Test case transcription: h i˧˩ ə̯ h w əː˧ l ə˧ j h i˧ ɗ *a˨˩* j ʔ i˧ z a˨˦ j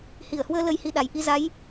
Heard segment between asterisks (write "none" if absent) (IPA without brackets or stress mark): a˨˩